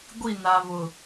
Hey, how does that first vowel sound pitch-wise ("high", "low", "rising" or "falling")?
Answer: falling